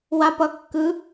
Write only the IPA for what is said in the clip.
w a p ʌ kː ɯ

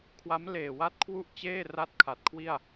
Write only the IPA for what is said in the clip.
kʰ w a˦˥ m l eː˨˩ w a˦˥ t̚ kʰ w u˥˩ ʔ t͡ɕ eː˥˩ r a˥˩ t̚ kʰ a˨˩ t̚ kʰ w i˥˩ a̯

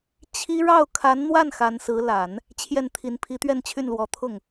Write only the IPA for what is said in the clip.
t͡ɕʰ i˥ ɻ ɑ˥˩ ʊ̯ kʰ a˧˥ n n̪ w a˥˩ n x a˧˥ n s ɹ̩˧˥ l a˨˩˦ n | t͡ɕʰ j ɛ˥˩ n t̪ʰ i˧˥ n pʰ i˧˥ t̪ ɥ ɛ˥˧ n t͡ɕʰ y˥˩ n l w ɔ˧˥ t̪ʰ ʊ˥˩ ŋ

